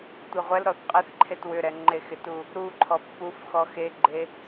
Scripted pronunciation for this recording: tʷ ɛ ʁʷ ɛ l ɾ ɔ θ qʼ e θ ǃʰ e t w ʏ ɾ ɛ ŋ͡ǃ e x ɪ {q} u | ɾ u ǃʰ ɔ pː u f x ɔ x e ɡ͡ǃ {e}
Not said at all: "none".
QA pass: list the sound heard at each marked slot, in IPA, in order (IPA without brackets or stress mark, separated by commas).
t, e